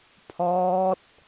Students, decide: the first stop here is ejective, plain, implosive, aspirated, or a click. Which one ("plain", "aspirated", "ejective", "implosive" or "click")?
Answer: aspirated